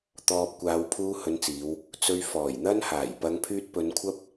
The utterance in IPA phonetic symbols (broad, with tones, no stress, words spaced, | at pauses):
t̪ɔː˨p̚ kʷaː˨˧wpʰuː˧hɵ˨˧nt͡siː˨˧w | t͡sɵ˨ɥ fɔː˨˩jn̪ɐ˧nhaː˨˩j pɐ˨˧ŋpʰyː˧t̚pɵ˨˧nkʷʰɐ˥p̚